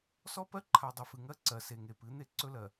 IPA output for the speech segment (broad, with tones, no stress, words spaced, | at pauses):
sɔ˦pɜ˦ǃʰa˨ dˤɵ˨fɨ˨ŋɜ˦ ǀɜ˨se˨ ŋe˨pɨ˨˦n̪e˦ ǀɵ˦lɜ˨